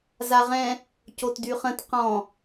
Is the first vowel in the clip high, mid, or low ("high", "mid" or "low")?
low